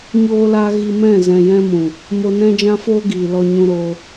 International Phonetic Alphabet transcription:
ɲoː˧la˧ ɣi˧mɛ̃˦˨ zɛ̃˨jɛ̃˧mũ˨ | mo˧nɛ̃˦d͡ʒã˦foː˦ ɡiː˨lɔ˧ɲũ˧ɾoː˧

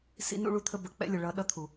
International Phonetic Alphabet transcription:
sḭ˦nṵ˦ɭu˦t̪ʰə˦ bə˨k͡pɛ̰˦lʲʊ˨ɭʌ˨˦ ɗʌ˦t̪ʰu˨

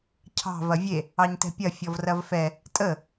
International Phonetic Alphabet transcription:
cʰɑ̤ vɐvʲe | ɑɲtɛ̤pʲɐ fʲɔvrɐvfɛ | tʼə

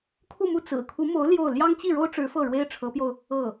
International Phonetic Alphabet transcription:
kʰu˥˧mu˥˩ t͡sɹ̩˨˩ kʰu˧˥mo˧˥ʊ̯ ljo˥˩ʊ̯ ljɑ˥ŋt͡ɕi˥˩ɻo˥ʊ̯ʈ͡ʂɻ̩˧˥ fɤ˥˩ɻwe˥ɪ̯ʈ͡ʂʰɤ˧˥pjo˧ʊ̯ | ɤ˥˩

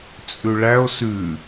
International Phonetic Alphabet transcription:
t͡sʼʉɭæo̯ sʉ

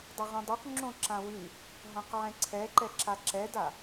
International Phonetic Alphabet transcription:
dˤaʁõdˤoq ŋ͡ǁõǁãwʉ | ɦãqʕɛ̃ǀʰɛǃɛ ǁaǁɛda

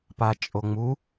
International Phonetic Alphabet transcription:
pat͡ʃʼoŋ͡mu

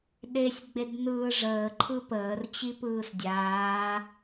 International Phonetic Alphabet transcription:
ɗesʲɡ͡bed nɯːʐəːǃʰɯ pəːrt͡ɕipɯːs dʲaː

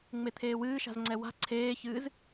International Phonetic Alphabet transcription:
ŋ͡met̪ʰeːwɨːʃa̤z ŋ͡ǀɛwa̤ ǀʰeːçɨːz

